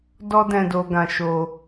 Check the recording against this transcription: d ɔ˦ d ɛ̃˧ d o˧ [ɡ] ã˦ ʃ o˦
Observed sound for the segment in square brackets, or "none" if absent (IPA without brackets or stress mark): ɡ